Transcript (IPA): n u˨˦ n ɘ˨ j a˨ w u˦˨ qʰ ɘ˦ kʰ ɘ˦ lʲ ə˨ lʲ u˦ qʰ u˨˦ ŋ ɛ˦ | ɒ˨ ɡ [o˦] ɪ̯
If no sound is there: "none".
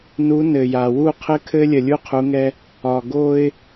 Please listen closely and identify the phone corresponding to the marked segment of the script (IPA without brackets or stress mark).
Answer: o˦